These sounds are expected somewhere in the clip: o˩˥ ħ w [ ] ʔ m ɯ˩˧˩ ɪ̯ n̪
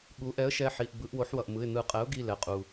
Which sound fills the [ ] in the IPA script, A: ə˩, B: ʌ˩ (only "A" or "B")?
B